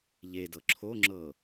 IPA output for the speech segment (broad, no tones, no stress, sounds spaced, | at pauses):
ʎ e d ɤ ǁʰ o ŋ͡ǁ ɤ